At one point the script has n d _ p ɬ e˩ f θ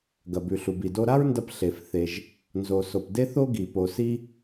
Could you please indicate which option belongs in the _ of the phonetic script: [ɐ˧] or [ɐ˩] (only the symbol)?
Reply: ɐ˧